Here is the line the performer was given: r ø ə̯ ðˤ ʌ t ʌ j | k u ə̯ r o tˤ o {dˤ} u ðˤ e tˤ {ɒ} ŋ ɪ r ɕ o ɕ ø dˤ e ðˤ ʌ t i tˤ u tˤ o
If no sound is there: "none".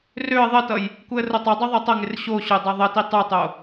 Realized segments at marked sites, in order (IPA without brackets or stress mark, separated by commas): dˤ, ʌ